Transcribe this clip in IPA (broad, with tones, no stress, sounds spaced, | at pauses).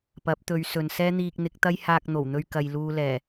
p ɐ˨˥ p̚ t̪ ɵ˨˧ ɥ s ɵ˨ n s ɛː˥ n̪ iː˧ k̚ n̪ ɪ˨˥ k̚ t̪ ɐ˥ j h aː˧ k̚ n̪ o˨˩ w n̪ ɵ˧ ɥ k ɐ˨ j l uː˧ l ɛː˨˩